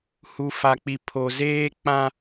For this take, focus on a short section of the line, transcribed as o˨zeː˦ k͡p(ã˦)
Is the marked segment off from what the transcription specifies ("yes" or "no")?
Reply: no